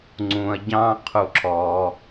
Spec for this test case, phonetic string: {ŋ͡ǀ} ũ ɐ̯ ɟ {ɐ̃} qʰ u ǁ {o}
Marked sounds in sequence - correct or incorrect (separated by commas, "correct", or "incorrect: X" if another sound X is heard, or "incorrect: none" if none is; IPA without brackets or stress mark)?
correct, incorrect: ɑ̃, incorrect: ɔ